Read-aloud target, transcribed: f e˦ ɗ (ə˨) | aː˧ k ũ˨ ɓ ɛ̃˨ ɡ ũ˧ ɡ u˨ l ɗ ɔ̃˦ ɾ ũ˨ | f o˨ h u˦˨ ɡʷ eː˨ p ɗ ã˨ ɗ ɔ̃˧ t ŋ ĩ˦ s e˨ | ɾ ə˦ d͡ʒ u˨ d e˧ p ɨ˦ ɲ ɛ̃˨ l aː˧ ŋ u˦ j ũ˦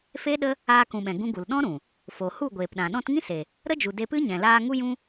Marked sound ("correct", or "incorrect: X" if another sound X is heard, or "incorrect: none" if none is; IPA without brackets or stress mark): incorrect: ə˦